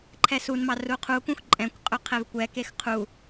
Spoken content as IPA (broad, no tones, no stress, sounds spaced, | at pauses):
ǃʰ ɛ s u n m ɑ r u qʰ u k ũ x ǃʼ ɛ̃ kʷ qʼ ɵ qʰ ɛ v kʷ ɛ k e x qʰ u